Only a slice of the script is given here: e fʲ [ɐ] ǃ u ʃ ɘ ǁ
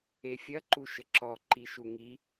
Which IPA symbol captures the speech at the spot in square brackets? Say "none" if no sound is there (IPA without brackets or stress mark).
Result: ɐ